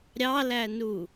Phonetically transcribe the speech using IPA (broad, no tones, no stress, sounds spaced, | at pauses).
ɾʲ ɑ l æ n u